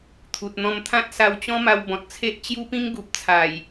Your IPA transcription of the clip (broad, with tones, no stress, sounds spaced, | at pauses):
t̪ʰ u˨ t̚ n̪ ɔ̃˧ m t̪ʰ ã˦ t̚ s a˧ w t͡ɕ ɔ̃˦ m a˧ w b ɔ̃˨ t̚ t͡sʰ e˦ ʔ t͡ɕ j u˦ p ĩ˦ ŋ ɡ u˨ p̚ t͡sʰ a˨˩ j